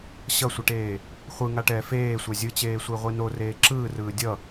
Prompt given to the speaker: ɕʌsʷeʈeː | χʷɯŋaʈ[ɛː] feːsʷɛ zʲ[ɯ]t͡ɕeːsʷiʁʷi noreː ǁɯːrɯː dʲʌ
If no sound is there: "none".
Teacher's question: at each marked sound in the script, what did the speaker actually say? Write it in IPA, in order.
ɛː, ɯ

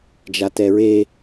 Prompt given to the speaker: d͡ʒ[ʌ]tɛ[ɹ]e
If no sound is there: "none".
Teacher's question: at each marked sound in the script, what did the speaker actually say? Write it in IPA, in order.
a, ɹ

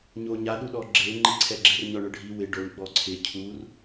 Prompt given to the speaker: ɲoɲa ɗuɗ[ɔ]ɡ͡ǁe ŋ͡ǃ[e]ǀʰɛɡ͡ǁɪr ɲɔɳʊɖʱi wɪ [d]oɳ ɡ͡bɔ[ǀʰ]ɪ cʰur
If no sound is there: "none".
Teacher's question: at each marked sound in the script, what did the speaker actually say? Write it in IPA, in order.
ɔ, i, ɖ, ǀʰ

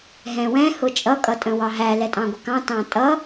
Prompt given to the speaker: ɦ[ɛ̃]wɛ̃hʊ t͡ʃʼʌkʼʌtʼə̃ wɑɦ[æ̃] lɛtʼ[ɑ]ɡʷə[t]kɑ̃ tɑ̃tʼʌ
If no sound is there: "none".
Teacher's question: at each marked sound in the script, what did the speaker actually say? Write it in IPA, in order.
ɛ̃, æ, ɑ̃, none

